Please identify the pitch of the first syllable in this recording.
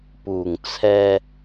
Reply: low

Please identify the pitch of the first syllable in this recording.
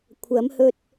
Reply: rising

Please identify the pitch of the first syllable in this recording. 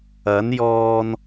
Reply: rising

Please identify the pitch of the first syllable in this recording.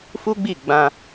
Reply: high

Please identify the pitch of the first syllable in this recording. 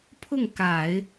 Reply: falling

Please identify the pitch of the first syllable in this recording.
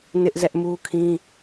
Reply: high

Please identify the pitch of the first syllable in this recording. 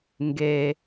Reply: low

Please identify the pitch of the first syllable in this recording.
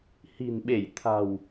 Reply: low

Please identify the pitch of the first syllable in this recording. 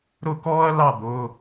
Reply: falling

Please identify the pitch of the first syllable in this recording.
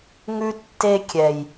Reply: high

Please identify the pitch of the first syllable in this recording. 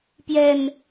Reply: low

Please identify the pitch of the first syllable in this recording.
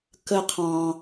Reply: high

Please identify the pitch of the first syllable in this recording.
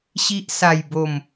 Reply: low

